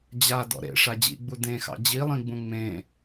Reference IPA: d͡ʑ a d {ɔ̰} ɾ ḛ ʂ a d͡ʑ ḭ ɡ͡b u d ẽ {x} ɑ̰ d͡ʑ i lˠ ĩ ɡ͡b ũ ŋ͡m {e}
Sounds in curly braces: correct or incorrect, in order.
correct, correct, incorrect: ẽ

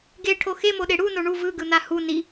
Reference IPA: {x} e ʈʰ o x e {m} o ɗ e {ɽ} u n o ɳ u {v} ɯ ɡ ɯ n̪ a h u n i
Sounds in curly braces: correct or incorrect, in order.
incorrect: ɡ, correct, correct, correct

